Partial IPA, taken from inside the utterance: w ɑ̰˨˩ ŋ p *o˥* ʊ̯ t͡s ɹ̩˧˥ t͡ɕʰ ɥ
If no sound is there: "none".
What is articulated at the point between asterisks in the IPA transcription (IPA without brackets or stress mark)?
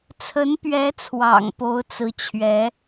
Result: o˧˥